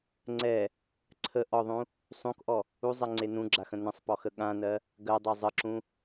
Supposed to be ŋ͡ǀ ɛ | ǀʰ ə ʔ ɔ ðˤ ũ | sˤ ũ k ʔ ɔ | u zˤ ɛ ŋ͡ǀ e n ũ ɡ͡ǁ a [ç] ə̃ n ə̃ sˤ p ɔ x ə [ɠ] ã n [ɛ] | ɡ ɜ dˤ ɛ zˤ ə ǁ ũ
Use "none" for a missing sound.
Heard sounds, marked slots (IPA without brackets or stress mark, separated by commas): x, ɠ, ɜ